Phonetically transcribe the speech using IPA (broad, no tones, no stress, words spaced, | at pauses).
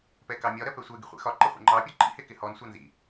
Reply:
pɛkɑmʲɒɾɜ pɛsʷɛɡi χʷɛ̰xɒǃɪ χʷɛ̰ŋ͡ǃɑpʲɒ ǃḭhɪ kɪhɔnsʷɑ nzḭ